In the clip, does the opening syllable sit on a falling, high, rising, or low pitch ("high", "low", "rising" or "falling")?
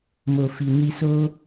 low